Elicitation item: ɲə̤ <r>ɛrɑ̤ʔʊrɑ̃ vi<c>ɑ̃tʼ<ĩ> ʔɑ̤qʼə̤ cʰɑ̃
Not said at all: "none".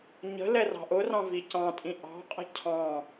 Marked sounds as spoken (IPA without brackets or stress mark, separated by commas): l, c, ĩ